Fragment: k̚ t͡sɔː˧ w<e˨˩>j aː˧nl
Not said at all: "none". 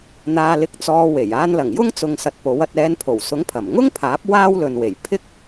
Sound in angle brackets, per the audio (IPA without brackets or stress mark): e˨˩